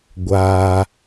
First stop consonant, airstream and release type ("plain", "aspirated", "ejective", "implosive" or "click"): plain